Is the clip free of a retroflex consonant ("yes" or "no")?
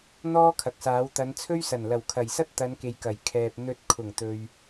yes